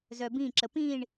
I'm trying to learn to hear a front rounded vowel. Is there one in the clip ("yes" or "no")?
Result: yes